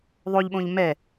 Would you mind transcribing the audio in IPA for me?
ðˤ o ʎ ɓ õ ʎ m ɛ

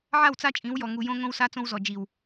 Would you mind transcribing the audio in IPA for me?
ʕ a˦˨ w t͡s a˦ t͡ʃʼ ĩ˨˦ w j ɔ˨ ŋ u˨ j õ˦ ŋ õ˦ w s a˦ t͡s õ˦ w z ɔ˨ d͡ʒ i˨ w

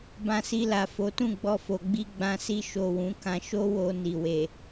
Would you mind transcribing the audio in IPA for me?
b ã˧ s i˧ l a˨ f o˨˦ t ũ˦˨ ɡ͡b ɔ˧ f o˨ ɡ͡b i˧ ɡ͡b ã˧ s i˧ ʃ o˨ w ũ˨˦ k ã˧ ʃ o˦ w o˧ n i˨ w e˨

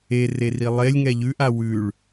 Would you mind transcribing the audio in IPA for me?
e r e r i lˠ e lʲ ŋ ɛ ʎ ʉ ʔ a w ʉ ɭ

